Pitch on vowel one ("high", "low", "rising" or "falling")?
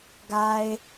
low